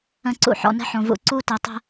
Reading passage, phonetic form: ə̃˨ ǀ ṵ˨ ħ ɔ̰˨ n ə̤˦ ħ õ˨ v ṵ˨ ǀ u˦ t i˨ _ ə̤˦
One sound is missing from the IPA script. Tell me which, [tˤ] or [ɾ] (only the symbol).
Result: tˤ